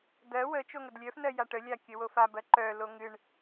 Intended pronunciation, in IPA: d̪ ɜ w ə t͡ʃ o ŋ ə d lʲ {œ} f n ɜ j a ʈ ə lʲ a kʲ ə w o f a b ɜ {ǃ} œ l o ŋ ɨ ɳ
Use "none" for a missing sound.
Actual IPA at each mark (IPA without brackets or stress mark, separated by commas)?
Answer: œ, ǃ